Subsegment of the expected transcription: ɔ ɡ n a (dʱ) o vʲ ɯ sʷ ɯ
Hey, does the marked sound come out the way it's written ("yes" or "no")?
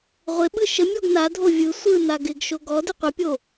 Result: yes